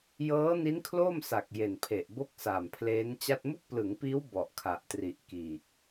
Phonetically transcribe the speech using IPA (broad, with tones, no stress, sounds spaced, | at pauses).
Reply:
j ɤː˦˥ n i˦˥ n kʰ l o˥˩ m s a˨˩ k̚ j e˨˩ n pʰ e˨˩ ʔ b o˥˩ k̚ s a˨˩ m pʰ l eː˦˥ n t͡ɕ a˥˩ t̚ m u˥˩ k̚ p l ɯ˩˦ ŋ p iː˦˥ w b ɔ˨˩ ʔ kʰ a˨˩ ʔ t r i˨˩ ʔ k iː˨˩ k̚